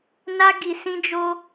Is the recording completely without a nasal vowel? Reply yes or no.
no